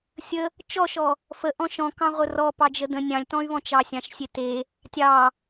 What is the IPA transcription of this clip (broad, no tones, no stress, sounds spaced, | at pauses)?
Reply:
sʲ ə | t͡ʃ ɔ ʃ ɔ | f ə ʔ ɔ̃ ʃ ɔ̃ k ɑ̃ ʁʷ ə r ɔ p ɑ d͡ʒ ə d ə̃ nʲ ɑ̃ lʲ t ɔ̃ y̯ β ɔ̃ t͡ʃ ɑ sʲ ɑ̃ ʃ sʲ e t e | tʲ ɑ